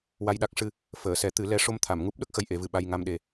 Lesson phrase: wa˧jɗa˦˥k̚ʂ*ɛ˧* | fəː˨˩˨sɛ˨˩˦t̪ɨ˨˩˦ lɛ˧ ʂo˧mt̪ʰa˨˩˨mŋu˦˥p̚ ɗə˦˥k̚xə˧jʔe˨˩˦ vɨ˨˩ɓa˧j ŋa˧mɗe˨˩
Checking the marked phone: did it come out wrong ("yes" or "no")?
yes